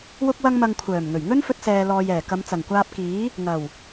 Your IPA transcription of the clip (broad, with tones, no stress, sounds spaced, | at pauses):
w ʊ˥ k̚ w ɐ˥ ŋ m ɐ˧ ŋ kʷʰ œː˨˩ m ŋ ɵ˨˩ ɥ ŋ ɵ˥ n f ɵ˧ t̚ s ɛː˨ l ɔː˨ j ɛː˨˩ k ɐ˨˧ m t͡s ɐ˨˩ ŋ kʷ aː˧ p̚ k iː˨˥ | ŋ ɐ˨˩ w